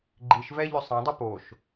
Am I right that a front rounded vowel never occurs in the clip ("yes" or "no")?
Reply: no